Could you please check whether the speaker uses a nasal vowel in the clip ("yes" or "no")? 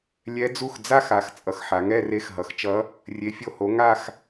no